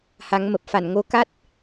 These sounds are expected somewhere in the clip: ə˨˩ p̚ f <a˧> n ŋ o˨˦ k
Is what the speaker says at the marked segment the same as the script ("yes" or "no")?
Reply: no